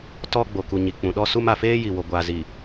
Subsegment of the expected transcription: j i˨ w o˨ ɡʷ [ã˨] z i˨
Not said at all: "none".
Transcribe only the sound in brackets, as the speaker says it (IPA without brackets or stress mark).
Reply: a˨